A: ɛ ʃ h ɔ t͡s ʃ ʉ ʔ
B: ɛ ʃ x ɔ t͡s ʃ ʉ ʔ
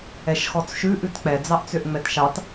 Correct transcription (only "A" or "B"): B